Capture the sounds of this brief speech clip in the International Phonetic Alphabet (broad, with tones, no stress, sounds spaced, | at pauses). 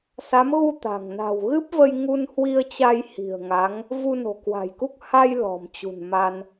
s a˨˦ m ɣ u˧ t̪ a̤˨˩ ŋ n a̤˨˩ w ɣ ɨ˦˥ p̚ v ə˧ j ŋ u˧ n h w i˧ ə̯ t͡ɕ a˧ j h i̤˨˩ ə̯ ŋ a˨˦ ŋ | v u˧ n o̤˨˩ k w a̤˨˩ j k u˦˥ k̚ h a˧ j l ɔ̤˨˩ m t͡ɕ ṳ˨˩ n m a˧ n